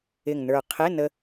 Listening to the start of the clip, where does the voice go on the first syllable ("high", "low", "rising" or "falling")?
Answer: low